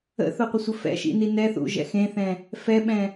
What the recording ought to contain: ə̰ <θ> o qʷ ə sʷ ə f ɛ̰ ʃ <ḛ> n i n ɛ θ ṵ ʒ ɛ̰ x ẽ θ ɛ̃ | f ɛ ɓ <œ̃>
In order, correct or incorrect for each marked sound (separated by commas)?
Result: correct, incorrect, incorrect